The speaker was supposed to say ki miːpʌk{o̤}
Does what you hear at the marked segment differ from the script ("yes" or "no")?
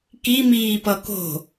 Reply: no